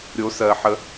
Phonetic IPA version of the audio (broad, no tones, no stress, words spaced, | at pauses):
ɾʲo sɜ ħə